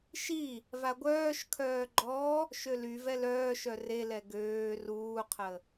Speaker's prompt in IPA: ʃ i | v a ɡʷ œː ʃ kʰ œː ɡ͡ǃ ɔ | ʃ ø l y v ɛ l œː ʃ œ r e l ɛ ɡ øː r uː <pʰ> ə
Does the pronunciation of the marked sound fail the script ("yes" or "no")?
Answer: yes